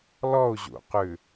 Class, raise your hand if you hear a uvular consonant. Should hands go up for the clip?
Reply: yes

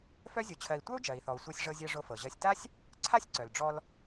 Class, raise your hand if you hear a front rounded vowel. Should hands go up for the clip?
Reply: yes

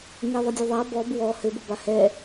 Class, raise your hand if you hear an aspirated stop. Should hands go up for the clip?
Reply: no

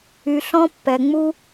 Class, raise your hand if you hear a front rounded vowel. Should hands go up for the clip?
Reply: yes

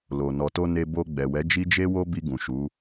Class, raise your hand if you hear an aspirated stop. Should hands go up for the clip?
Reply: no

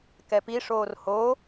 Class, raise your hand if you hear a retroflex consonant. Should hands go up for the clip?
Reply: yes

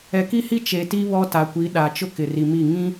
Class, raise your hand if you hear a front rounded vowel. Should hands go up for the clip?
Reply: no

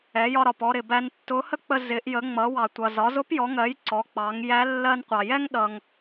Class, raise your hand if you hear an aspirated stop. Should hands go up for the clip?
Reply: no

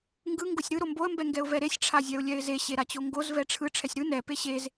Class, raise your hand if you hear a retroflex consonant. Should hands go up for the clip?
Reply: yes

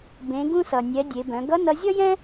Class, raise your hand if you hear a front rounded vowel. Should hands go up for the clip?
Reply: yes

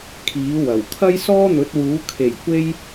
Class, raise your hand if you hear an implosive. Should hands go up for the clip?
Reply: no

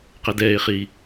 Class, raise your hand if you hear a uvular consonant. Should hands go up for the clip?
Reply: yes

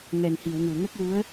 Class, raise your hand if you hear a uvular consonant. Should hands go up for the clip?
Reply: no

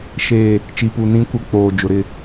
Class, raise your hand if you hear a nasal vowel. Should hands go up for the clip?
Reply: yes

